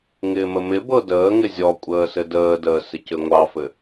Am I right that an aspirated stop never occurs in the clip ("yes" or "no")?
yes